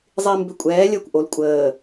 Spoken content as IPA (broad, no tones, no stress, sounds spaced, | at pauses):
zˤ iː m b ʏ kʷʼ ɛː lʲ əː kʷ ʔ o l kʷʼ əː